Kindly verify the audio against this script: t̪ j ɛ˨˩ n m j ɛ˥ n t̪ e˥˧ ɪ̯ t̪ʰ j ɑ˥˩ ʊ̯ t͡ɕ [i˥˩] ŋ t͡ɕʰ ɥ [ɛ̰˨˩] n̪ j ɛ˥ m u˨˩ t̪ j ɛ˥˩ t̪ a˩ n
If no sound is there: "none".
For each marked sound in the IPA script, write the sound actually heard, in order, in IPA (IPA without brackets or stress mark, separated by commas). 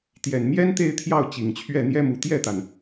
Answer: i˨˩, ɛ˥˩